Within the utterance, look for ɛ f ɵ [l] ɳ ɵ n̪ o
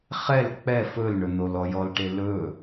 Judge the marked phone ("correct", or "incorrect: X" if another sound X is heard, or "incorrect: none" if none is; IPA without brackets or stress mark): correct